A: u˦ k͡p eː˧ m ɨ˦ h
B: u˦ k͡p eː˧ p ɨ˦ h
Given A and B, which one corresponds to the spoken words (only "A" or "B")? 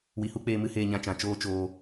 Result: A